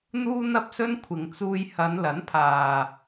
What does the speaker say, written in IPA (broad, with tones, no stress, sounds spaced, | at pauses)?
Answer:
n̪ uː˥ n̪ ɐ˥ p̚ s ɵ˥ n kʷʰ ɪ˨ ŋ t͡s uː˧ j h ɐ˨˧ n l ɐ˨˥ n pʰ aː˨